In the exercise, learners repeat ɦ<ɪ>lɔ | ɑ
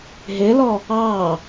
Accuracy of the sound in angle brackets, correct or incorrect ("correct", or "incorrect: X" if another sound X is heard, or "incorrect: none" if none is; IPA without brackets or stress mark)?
correct